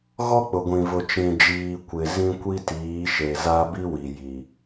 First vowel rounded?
yes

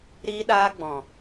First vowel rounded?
no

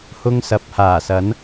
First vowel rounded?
yes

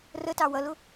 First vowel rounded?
no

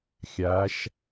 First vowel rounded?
no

